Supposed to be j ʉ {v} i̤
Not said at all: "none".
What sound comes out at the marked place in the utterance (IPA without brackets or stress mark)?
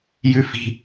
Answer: f